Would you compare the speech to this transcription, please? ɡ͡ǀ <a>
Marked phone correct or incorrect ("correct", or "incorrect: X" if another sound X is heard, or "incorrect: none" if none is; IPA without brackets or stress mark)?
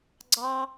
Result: incorrect: ɑ